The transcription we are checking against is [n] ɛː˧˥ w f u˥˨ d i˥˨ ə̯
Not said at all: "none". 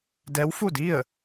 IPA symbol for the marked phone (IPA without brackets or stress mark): d